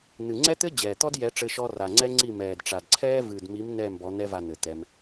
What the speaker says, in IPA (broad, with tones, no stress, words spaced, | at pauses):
n̪ɨ˨ŋ͡ǀɛ˦t̪ɘ˦ d͡ʑɛː˨t̪ɔ˦djɛ˨˦ ʈ͡ʂɘ˧ʃɔ˧ ra˨ŋ͡ǀɛ˦ŋ͡ǀi˦˨ mɛː˨dʈ͡ʂa˨dǀʰɛː˦ vɨː˨dmi˨˦m n̪ɛː˦˨mbɔ˨˦ n̪ɛ˧va˨ n̪ɘ˨t̪ɛ˧m